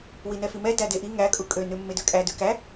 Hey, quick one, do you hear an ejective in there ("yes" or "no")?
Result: yes